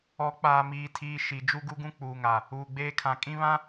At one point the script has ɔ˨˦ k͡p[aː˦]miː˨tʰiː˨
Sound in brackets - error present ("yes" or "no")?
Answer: yes